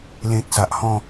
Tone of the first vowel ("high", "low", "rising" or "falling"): high